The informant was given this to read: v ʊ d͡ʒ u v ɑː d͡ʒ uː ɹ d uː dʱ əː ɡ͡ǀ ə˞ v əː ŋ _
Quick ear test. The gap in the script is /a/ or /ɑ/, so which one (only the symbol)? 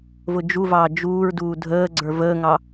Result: ɑ